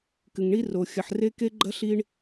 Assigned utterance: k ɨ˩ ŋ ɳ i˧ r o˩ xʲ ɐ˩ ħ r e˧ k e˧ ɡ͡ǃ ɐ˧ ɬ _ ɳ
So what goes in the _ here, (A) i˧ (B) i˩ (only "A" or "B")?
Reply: A